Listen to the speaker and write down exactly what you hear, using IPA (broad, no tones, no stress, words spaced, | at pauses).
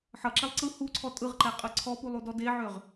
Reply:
ħʌǁɛlˠ ǀɯ huǀʰɔ tʼɯʁǃɛqʼɯ ǀʰɔpulˠudɔ deʕøʁ